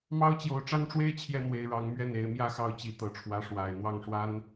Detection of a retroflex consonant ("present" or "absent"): present